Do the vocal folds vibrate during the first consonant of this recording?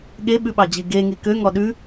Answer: yes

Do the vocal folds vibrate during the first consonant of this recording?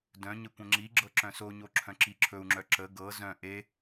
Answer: yes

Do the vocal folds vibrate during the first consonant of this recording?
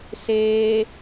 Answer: no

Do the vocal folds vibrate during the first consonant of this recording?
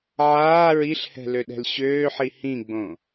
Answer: yes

